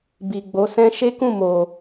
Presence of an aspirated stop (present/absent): absent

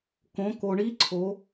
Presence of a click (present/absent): present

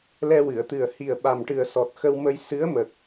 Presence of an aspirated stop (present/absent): absent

